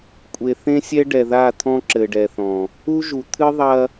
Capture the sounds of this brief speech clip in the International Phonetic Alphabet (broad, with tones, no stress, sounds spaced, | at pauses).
kʷʼ e˨ θ ẽ˦ sʲ ɛ˦ ɖ ɛ˨ ð a˦˨ t̪ʰ ɔ̃˦ ǁ ɘ˨ ɖ ɛ˨ θ ɔ̃˨ | u˦ ʒ u˨ t̪ʰ ɨ˦ ðˤ ɐ˦